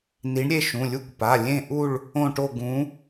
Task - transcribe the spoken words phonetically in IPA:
ni˨˦ɳ ɾʲe˥˧ʃũ˩˧˩lʲu˥˧kʷ pa˩˧˩ lʲẽ˥˧ʔu˥˧ɭ | õ˥˧ʈo˥˧ ɡũ˨˦

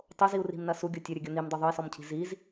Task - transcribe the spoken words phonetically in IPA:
tˤoziu̯ ri̤mnɐ suɡʲo tʲɘɾʲɵɡʲo nimdˤo ðˤɵi̯sɔmcʰi̤ ziz

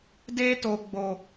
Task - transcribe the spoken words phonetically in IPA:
deː˦toː˨ ɡ͡bo˨

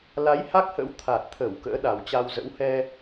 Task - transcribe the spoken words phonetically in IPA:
la˨˦j ha˦˥k̚hə̰˧˥wt̪ʰa˨˩t̚t̪ʰə˧˩w kə̰ː˧˥ɗa˨˩wt͡ɕa˧wzə̰˧˥w hɛ˧

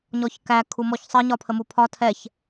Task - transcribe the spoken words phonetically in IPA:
ɲɔçkæ kʰumɔçsˤə ɲɒpʰəmupʰɒ tʰɛç

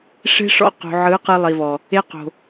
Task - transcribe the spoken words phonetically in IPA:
ʂe̤˦ʂɔ̰˧ qo̤˨ʕɯ˨˦ qɯ˧lˠi˨vɔ˨ | e˧qo̤˨

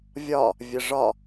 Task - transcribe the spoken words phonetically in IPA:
vʲɒ | vʲəʐɒ

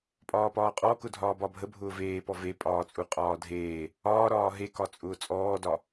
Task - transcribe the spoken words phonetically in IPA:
pʼɒːpɒːqʼɔ kʊdʱɒːbɒbʱə bʱʊːveːpɔ vepʼɒːt͡sʼu qʼɒːdʱeː | ɒːɾɒː ɦekɒt͡sʼʊː t͡sʼɔːdɒ

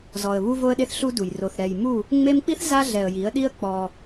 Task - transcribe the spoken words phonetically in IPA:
zɔ˨ə̯ βu˦vo˦ə̯ɗe˦θ ɬu˦du˨j ro˨θɾɛ˨jmu˦˨ | ŋ͡me˦m k͡pi˦θ za˦ɮɛ˨ə̯ji˨˦ə̯ɗi˦ə̯ k͡pɔ˦

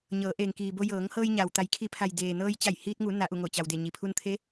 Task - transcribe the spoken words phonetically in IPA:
ɲɤː˩˧ʔeː˩ŋkiː˩bo˧ jɤː˩˧ŋhɤː˧jɲa˩w t̪a˩˧jkʰi˩˧pʰa˩j deː˩nɤː˧j t͡ɕa˧˩jhiː˧t̚ŋu˩˧ na˩˧ʔu˧˩ŋo˧˩t͡ɕa˩w de˧˩ɲi˩pʰu˧n t̪ʰe˧˥

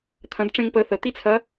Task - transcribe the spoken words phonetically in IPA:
t̪ʰɐ̃˧˥dʈ͡ʂẽ˥ŋpə˧˥ θə˩˧t̪i˥t͡sʰɐ˧˥

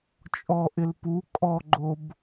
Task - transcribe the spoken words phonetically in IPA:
t͡ʃʼɔʔɪl pu kʼɔɡ͡ǃob

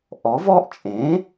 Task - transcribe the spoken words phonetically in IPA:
ʔɔ˩˥vɔ˥ʔ t͡ʃʼẽ˩˥

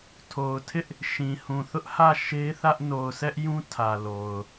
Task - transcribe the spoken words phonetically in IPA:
tʰo˨ʊ̯tʰɪ˦ʔ | ʃĩ˨hũ˨ θʊ˦ʔhä˦˨ ʃe˦θä˦ʔ no˨ʊ̯sɛ˦ʔjũ˦ tʰä˨lo˨ʊ̯

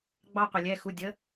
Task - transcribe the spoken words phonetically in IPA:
ɡ͡bɑ˦ qʷɪ˩lʲɛ˩˧˩xu˩˧˩dʲə˨˥

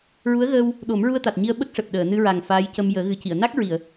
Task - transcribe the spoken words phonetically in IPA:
ɹu˧˥ə̯ɣəː˧w | ɗo˨˩˦mɹu˧ə̯t̪a˨˩t̚ ɲi˧ə̯ɓə˦˥k̚ʂɛ˨˩p̚ ɗəː˨˩˨nɨ˧ɹa˨˩ŋ faː˧˥jcə˧m jəː˨˩˦ɣɨ˨˩˦ci˨˩˨ə̯ na˦˥k̚ɹi˨˩˨ə̯

